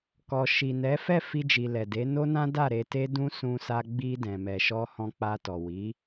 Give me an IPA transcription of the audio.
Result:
k ɔ˨ ʃ i˨ n ɛ˨˦ f ɛ˦˨ f i˧ d͡ʒ i˨ l ɛ˨ d e˨˦ n o˦ n ã˦ d a˦˨ ɾ e˨˦ t e˦ d ũ˦ s ũ˧ s a˧ ɡ͡b i˧ d ɛ̃˨ m ɛ˨ ʃ ɔ˧ h ɔ̃˧ k͡p a˧ t ɔ˨ w i˨˦

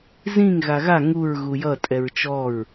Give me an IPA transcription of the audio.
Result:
z ĩ ŋ ɣ a ɣ a ŋ u ɹ ɣ u j ʌ tʼ ɛ ɹ t͡ʃ ɔ ɹ

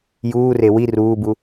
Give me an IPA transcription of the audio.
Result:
j uː r e w i r uː b u

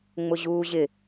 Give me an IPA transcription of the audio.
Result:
ŋ͡m ʊ ʑ uː ʑ ɪ

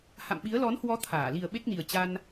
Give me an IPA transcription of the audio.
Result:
h a̰˧˨ m ɓ i˨˦ ə̯ l ɔ˨˦ n h w ɔ˨˦ t̪ʰ aː˧˩ l i˨˩ ə̯ ɓ e˦˥ k̚ n i˨˩ ə̯ t͡ɕ a˧ n

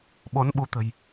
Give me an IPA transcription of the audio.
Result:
ɓ o˨˦ n ɓ u˧ t̪ ə̤˨˩ j

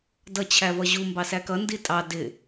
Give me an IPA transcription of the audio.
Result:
d ʌ t͡ɕʰ æ v ʌ ʑ u m b ɑ s æ k ʌ n d i tʼ ɑ d ɪ

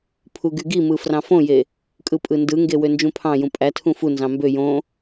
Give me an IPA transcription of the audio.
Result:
pʰ u ɡ y ɡ i m ɯ f r ɑ̃ f õ j e | kʼ ɯ pʼ ɯ n d ɯ ŋ ɡ e w ø n d͡ʒ ũ pʰ ɑ̃ j ũ pʼ æ tʰ ũ f u n z ɑ̃ m b ø j õ

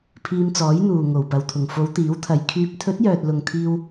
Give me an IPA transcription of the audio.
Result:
pʰ iː˧ m t͡s ɔː˨˥ j n̪ uː˨ ŋ o˨˩ w p ɐ˨˩ w t̪ʰ ʊ˨˩ ŋ f o˨˧ w t̪ iː˨˥ w t̪ʰ ɐ˨ j kʰ yː˨˥ p̚ t̪ʰ ɵ˨˥ t̚ j œː˨ t̚ l ʊ˨ ŋ t̪ʰ iː˧ w

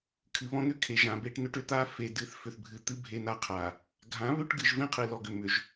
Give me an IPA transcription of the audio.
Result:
kʰ ɨ˨ β ɔ̃˦ n̪ ʏ˦ kʰ e˨ ʒ ã˨ b e˦ ʈ n ʏ˦ ʈ ʏ˨ t̪ a˦ f e˨ d ɨ˨ θ f ʏ˨ θ bʱ ɨ˨ t̪ ɨ˦ bʱ e˦ n a˦ qʰ a˨ | ɡʱ ã˨˦ β ʏ˦ ʈ ɡ ɨ˨ ʒ v ẽ˦ qʰ ɨ˨ l ɔ˨ ɡ ʏ˨ m ʏ˨ ʒ

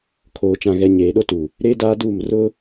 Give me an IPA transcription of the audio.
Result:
kʰ oː˨ t͡ʃ ã˨ ɣ ɛ˨ ɲ eː˨ ɗ o˦ t u˨ | ɾ eː˦ d aː˦ d uː˦˨ m r ʊ˦

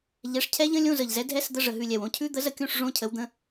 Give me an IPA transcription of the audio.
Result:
ʎ ɛ˨˥ ʂ cʰ ɛ˦˥ ʎ ə̃˦˥ lʲ õ˧˥˧ z ə˨˩ ʎ z ɛ˨˥ dʱ ɛ˦˥ s d̪ ə˧˥˧ ʐ ə˨˩ ɦ ʉ˦˨ lʲ ɛ˨˩ w õ˦˥ cʰ ʉ˦˥ d̪ ə˨˥ z ə˨˥ kʲ õ˧˥˧ ʂ ʐ õ˦˥ cʰ ə˨˥ w d̪ ə̃˧˥˧

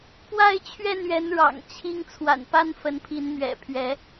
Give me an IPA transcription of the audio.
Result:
p w a˥˨ ɪ̯ t͡ɕʰ ɥ ɛ˥˨ n ɥ ɛ˨˦ n ɻ ɑ̰˨˩ ŋ t͡ɕʰ i˦ ŋ t͡sʰ w a̰˨˩ n p a˦ n f ə˨˦ n pʰ i˨˦ n m ɥ ɛ̰˨˩ pʰ ɥ ɛ˨˦

